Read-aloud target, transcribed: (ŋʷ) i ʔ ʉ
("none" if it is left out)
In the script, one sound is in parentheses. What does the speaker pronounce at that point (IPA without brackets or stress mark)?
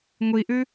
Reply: ŋʷ